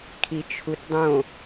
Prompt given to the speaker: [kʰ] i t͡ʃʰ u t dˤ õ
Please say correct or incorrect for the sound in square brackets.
correct